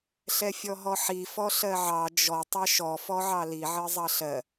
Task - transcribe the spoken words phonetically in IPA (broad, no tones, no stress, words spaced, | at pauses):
ɬɛfʲɔɦɔħi fɔɬɜʕɑ d͡ʒɔ tˤɑʃɔ fɔʕɑli ʕɜzˤɑɬɜ